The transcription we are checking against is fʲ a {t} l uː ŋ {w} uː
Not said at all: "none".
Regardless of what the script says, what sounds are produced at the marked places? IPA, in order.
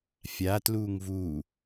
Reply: t, v

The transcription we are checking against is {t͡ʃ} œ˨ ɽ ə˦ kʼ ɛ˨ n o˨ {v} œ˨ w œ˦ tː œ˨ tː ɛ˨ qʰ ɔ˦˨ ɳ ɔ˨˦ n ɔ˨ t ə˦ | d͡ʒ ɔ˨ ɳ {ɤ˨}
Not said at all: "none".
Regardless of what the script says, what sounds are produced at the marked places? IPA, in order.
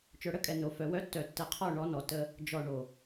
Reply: t͡ʃ, f, o˨

